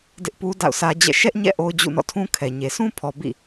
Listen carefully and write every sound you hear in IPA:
d ɪ˦ ʔ p u˦ d a̰˦˨ ʊ̯ sʰ ä˦ d͡ʑ ɛ̰˦˨ ʃ ɛ˦ ʔ ɲ ɛ̰˦˨ ʔ o˦ ʊ̯ d͡ʑ ṵ˦˨ n ɔ̰˦˨ tʰ ũ˦ kʰ ɛ˨ ɲ e˨ s ũ˦ pʰ ɔ˨ b ḭ˦˨

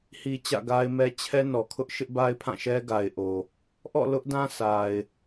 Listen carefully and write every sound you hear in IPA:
h i˨ t͡ɕ ä̰˦˨ ɡ a˦ ɪ̯ m ɛ˦ t͡ɕʰ ɛ˦ n ɔ˨ kʰ ʊ˦ ʔ ʃ ɪ˦ ʔ b a˦ ɪ̯ pʰ ã˦˨ ʃ ɛ˦ ɡ a˨ ɪ̯ ʔ o˨ | ʔ ɔ̰˦˨ l ʊ˦ ʔ d ã˦ s a˨ ɪ̯

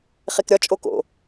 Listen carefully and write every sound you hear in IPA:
χ e k ɾʲ ɒ t͡ʃʼ o k o̰

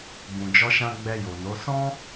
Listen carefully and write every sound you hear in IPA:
b ũ˨ d͡ʒ ɔ˧ ʃ ã˧ ɡ͡b ɛ˧ j o˨ n o˨˦ s ɔ̃˦

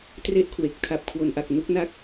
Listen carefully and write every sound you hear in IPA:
t r e˦˥ ʔ kʰ w e˨˩ k̚ tʰ a˨˩ p̚ kʰ w o˩˦ n ʔ a˨˩ k̚ n u˦˥ k̚ n a˦˥ k̚

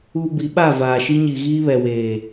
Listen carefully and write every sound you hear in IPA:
u˨ b i˨˦ ɓ a˦˨ v aː˨ ʃ i˦ ɲ i˨ ɣ iː˦ β ɛ˨ w eː˨

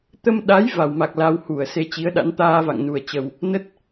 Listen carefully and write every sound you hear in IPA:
t̪ ə˧ m ɗ a˨˦ j v a˧˩ w m a˨˩ k̚ l a˧ w h u˧˩ ə̯ s e˨˦ t͡ɕ i˨˦ ə̯ ɗ a̰˧˥ n t̪ aː˧ v a̰˧˨ ŋ n u˨˩ ə̯ t͡ɕ ə˨˩ w | n ə˦˥ t̚

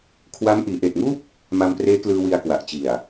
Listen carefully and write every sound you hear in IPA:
kʰ w a˦˥ m ʔ iː˩˦ ʔ eː˨˩ t̚ ŋ uː˥˩ p̚ | m a˧ m p r eː˦˥ k l ɯː˧ w i˧ a̯ k w a˨˩ ʔ t͡ɕ i˨˩ a̯

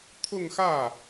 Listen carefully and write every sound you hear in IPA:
t̪ʰ ʊ˥˧ ŋ x ä˥˩

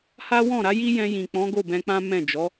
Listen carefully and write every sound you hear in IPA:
h a˦ w ɔ̃˦˨ ɾ a˨˦ j i˦ j ɛ̃˧ j ĩ˨ k͡p ɔ̃˨˦ ɡ o˦˨ b ɛ̃˧ k͡p ã˦ m ɛ̃˦˨ d͡ʒ ɔ˨˦

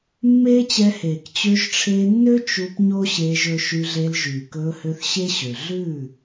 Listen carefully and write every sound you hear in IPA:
mː eː˦ t͡ɕ ɛ˧ h eː˨ k t͡ɕ ø˧ ʒ ʈ͡ʂʰ eː˧ nː ø˦ t͡ʃ u˧ p ɲ o˦ ɕ eː˧ ʒ ɵ˧ ʃ y˧ ɮ e˧ l ʒ yː˨ k ɵː˧ h ø˧ θ ɕ e˦ ɕ ø˨ ɮ ʉː˦˨

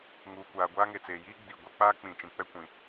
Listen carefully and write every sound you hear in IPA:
ŋ uː˨ kʷ aː˨ ɡʷ aː˦ ŋ e˨ t͡s eː˨ j iː˦ ɡ͡b i˨ ɡʷ ɛ˦ k͡p aː˦ k͡p ĩ˨ t͡ʃ ĩ˨ k͡p ɛ˦ kʷ ĩ˨

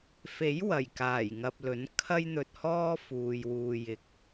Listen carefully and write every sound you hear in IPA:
f e˨˥ j w ɐ˨˩ j k aː˨˩ j ŋ ɐ˨ p̚ l ɵ˨˥ n kʰ ɐ˥ j n̪ ɵ˧ t̚ h ɔː˥ f uː˨ j w uː˧ j ɪ˧ k̚

